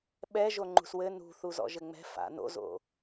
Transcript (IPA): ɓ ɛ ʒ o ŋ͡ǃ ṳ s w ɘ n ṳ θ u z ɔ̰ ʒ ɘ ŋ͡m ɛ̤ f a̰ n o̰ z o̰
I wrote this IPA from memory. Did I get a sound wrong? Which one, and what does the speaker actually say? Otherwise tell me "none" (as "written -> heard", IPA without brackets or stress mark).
none